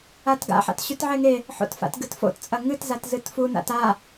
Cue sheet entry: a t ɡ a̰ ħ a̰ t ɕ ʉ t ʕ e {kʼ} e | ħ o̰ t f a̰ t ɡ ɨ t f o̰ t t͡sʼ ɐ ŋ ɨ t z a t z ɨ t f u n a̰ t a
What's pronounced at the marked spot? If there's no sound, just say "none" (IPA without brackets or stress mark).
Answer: ŋ